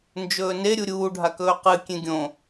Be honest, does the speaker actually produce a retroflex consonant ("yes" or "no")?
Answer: yes